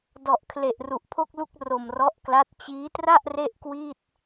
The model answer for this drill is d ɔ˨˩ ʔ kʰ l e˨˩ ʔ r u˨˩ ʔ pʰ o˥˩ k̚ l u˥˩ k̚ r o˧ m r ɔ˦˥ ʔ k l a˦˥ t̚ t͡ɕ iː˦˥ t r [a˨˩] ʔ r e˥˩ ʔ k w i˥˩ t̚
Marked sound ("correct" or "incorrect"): incorrect